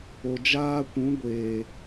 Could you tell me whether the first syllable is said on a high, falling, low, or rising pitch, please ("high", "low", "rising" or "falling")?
low